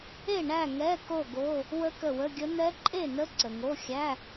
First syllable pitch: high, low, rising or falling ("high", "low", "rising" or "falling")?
falling